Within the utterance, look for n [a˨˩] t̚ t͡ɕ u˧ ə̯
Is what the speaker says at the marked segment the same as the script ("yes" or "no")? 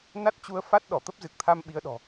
no